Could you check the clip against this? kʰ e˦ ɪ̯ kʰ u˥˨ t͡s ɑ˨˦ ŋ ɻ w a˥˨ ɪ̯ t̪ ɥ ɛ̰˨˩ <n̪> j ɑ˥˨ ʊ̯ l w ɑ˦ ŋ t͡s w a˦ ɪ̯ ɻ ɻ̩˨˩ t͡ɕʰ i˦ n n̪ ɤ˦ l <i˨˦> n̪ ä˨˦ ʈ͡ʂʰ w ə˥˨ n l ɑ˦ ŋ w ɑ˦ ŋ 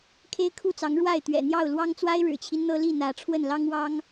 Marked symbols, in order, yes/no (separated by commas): yes, no